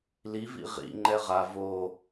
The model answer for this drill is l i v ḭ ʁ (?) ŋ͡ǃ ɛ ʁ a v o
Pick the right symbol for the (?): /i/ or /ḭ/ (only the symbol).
ḭ